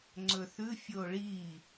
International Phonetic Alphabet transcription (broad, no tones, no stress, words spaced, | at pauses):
ŋ͡ǀɵθʉ fʲoɭi